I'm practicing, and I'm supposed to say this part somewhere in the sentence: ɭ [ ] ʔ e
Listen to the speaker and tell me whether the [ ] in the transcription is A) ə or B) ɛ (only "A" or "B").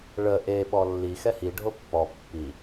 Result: A